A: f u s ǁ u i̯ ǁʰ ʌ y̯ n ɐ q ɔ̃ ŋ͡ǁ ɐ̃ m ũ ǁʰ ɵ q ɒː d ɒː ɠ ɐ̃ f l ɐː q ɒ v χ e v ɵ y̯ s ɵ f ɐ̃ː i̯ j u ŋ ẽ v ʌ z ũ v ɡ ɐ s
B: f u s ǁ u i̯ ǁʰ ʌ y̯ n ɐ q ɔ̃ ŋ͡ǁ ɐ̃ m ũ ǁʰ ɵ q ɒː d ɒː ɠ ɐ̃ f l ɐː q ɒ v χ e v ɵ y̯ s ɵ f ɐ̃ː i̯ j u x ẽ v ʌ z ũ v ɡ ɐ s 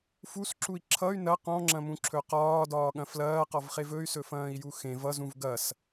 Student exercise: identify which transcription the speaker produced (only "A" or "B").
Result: B